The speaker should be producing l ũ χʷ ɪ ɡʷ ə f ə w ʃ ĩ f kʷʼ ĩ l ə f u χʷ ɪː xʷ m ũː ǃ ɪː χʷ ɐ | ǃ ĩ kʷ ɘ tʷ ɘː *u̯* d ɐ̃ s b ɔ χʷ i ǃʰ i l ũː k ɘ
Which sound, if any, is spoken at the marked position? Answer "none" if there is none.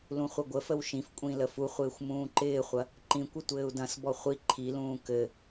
u̯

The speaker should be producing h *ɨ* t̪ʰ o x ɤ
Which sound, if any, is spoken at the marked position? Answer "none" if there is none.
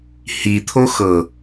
i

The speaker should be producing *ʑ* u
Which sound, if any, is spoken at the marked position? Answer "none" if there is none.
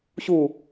ɕ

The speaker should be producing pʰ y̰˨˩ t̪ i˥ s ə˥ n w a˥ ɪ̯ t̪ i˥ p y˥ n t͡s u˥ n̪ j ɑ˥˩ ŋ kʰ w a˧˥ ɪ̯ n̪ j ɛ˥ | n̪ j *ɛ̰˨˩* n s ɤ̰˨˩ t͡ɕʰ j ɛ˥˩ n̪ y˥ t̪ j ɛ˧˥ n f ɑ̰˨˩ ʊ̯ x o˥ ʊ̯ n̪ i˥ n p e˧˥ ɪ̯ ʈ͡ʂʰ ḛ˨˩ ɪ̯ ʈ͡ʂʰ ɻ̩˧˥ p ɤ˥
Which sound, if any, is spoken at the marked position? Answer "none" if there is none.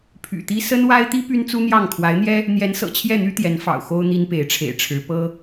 ɛ˧˥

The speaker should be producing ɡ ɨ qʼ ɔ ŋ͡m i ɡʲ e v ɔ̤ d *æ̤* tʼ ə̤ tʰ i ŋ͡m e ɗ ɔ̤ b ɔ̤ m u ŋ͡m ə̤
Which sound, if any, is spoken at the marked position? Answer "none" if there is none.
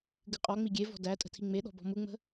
æ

